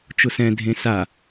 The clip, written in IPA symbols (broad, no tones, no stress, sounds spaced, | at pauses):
t͡ʃ ʊ s ɛ̃ dʱ ẽ s a